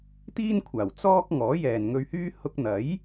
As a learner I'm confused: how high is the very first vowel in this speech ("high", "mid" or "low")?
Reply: high